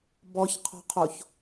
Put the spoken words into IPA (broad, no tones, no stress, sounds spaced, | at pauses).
b ɔ ç qʰ ɔ̤ qʰ o ç